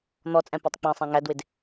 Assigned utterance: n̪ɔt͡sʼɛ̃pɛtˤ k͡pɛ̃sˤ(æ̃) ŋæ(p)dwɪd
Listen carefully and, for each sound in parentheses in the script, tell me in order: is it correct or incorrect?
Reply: correct, incorrect

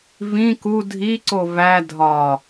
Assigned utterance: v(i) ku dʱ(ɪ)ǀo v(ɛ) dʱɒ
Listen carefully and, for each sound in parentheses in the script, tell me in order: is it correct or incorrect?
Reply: incorrect, incorrect, incorrect

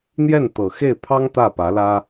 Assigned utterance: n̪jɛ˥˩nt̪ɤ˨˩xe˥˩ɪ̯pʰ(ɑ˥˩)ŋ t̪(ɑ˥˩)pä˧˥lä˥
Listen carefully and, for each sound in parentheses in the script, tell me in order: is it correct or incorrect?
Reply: incorrect, incorrect

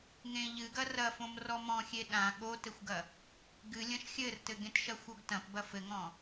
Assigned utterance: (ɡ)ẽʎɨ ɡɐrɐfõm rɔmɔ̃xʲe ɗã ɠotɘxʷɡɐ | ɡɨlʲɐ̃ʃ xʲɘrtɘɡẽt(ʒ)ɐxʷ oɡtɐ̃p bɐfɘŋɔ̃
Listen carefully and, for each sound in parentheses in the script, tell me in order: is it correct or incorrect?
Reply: incorrect, incorrect

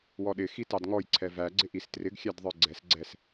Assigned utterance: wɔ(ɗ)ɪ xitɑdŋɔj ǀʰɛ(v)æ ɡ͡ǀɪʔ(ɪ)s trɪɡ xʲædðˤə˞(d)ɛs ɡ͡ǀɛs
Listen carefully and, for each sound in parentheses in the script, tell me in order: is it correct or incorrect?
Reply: correct, correct, incorrect, incorrect

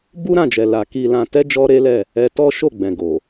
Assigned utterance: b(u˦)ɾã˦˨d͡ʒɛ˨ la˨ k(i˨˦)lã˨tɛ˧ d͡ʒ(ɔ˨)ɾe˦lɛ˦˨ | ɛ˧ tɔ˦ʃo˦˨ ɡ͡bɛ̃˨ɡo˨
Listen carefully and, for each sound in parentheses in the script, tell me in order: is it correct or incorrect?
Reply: correct, incorrect, incorrect

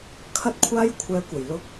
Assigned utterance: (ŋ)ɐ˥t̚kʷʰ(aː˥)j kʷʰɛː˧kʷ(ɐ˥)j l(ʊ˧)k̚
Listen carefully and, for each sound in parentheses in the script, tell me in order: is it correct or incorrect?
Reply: incorrect, correct, incorrect, correct

